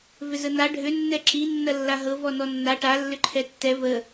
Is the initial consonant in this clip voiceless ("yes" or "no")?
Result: no